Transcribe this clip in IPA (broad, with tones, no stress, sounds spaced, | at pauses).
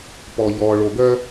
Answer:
p ɔ˨ ʎ ɔː˨ ɭ o˨˩˦ ɡ œ˦